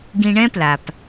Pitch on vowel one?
low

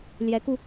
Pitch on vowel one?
rising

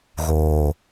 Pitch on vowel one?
low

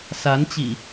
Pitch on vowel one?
rising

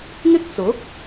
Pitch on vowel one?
high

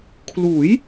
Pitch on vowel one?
rising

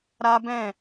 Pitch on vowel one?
high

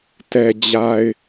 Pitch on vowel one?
low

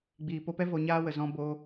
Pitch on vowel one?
low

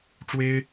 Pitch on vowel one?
high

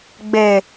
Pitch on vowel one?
low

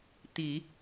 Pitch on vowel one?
low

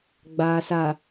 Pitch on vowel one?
low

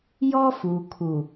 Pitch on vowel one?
high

